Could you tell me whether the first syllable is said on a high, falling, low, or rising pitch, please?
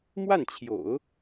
falling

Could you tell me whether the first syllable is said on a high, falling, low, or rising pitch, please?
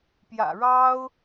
low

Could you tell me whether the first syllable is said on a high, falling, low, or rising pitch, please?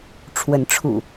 rising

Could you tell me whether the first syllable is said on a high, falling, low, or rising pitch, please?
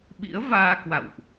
rising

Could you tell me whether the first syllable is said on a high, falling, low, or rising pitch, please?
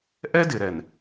high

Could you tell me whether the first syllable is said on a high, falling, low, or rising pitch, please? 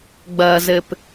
low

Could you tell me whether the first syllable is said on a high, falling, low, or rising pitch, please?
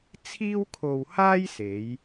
high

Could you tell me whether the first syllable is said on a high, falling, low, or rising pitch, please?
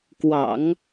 low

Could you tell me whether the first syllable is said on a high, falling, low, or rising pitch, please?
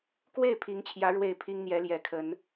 falling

